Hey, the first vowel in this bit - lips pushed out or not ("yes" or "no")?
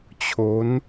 yes